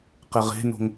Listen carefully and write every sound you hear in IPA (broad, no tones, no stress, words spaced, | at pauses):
qɛʁe̤no̤ŋ